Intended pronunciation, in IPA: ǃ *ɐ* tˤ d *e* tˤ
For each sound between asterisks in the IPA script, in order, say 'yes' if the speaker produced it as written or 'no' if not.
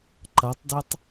yes, yes

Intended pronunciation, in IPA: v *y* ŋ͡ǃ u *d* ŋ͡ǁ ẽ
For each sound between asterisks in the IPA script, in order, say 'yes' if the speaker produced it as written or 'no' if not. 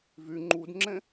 yes, yes

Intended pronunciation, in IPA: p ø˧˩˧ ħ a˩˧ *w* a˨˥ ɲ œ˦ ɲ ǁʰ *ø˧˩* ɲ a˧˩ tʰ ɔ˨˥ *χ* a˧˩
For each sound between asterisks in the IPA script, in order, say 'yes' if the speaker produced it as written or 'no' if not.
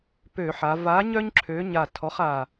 no, no, yes

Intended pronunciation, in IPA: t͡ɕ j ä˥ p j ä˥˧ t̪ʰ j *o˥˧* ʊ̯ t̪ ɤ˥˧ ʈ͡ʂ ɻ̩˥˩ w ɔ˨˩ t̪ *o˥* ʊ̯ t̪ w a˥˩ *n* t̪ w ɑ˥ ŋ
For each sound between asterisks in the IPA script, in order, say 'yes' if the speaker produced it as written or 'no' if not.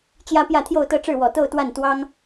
yes, no, yes

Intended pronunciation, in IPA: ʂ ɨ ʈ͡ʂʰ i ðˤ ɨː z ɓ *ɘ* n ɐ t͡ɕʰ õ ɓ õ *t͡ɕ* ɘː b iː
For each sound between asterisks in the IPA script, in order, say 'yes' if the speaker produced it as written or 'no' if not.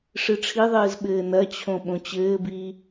no, yes

